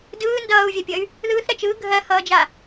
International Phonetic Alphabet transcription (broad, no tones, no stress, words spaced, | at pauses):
dɯː ndʌːu̯vʲapʲʌy̯ | ðɯːθɾɜt͡ʃ ɯː ɡʱɜhʌːd͡ʒa